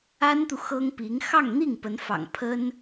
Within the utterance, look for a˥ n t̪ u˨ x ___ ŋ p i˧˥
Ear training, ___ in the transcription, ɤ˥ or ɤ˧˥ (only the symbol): ɤ˥